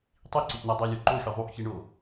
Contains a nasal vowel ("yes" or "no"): no